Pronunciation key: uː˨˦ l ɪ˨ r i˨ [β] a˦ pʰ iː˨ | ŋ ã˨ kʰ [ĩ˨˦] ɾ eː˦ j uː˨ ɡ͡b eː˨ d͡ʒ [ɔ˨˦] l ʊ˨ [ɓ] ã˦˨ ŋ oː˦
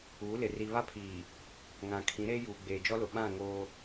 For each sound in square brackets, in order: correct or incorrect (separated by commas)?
correct, correct, incorrect, correct